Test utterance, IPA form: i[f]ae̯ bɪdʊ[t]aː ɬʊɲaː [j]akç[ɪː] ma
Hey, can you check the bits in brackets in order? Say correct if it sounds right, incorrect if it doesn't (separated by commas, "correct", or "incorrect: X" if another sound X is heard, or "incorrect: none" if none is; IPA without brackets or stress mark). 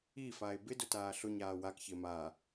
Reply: correct, correct, incorrect: w, correct